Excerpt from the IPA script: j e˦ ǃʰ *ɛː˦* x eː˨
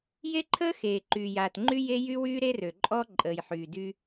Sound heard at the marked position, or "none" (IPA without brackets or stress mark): əː˦